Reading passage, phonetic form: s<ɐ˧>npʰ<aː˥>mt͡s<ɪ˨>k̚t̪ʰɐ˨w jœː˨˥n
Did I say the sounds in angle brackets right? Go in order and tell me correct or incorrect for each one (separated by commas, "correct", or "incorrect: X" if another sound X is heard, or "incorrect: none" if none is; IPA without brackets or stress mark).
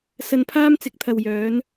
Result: correct, correct, incorrect: ɪ˨˥